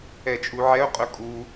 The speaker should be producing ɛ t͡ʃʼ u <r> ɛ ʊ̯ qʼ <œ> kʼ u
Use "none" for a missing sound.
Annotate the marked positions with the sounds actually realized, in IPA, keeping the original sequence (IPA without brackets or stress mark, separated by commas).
ʕ, œ